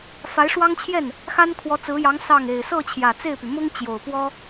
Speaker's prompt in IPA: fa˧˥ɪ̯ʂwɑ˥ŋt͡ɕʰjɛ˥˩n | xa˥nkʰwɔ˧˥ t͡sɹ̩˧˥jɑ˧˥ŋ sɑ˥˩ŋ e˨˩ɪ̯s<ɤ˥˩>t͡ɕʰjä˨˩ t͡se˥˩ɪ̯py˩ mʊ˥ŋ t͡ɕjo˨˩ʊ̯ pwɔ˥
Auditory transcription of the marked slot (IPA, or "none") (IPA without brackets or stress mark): ɤ˥˩